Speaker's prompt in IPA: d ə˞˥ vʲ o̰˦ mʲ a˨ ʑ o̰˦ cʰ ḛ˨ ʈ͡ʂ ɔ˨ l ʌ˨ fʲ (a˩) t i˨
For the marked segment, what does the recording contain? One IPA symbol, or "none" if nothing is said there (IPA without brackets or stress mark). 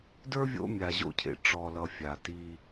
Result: a˩